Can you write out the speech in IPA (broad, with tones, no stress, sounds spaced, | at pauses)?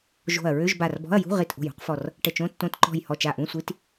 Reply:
ʒ o̤˧˩ ɐ̯ ɹ ø˧˥˧ ʒ b a˧˩ r b ɔ̤˧˥˧ ɐ̯ j ṳ˧˥˧ ʁ i˧˩ t ʔ o̤˧˩ j ṳ˧˥˧ q f ɔ˧˩ r | ʈ ə˧˩ t͡ʃ õ˧˥˧ tː õ˧˥˧ t ǃ ɔ̤˧˩ j h ɔ˧˩ t͡ʃ a˧˩ ʔ ũ˧˥˧ sʷ i˧˥˧ t